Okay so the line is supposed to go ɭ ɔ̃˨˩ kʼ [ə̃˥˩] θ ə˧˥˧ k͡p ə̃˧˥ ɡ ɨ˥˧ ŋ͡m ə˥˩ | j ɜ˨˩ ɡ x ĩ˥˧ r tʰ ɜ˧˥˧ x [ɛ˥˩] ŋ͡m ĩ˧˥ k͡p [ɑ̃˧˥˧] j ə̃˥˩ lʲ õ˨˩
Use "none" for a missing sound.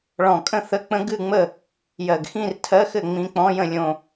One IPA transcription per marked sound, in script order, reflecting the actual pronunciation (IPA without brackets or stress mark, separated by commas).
ə̃˥˩, ɘ˥˩, ɔ̃˧˥˧